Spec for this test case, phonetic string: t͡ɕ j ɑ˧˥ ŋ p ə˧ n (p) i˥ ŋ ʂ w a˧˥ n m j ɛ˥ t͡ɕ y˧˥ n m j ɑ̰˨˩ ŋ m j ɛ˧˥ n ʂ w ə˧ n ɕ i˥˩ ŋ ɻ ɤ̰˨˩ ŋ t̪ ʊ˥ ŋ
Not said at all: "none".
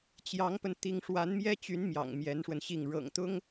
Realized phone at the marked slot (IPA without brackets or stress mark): t̪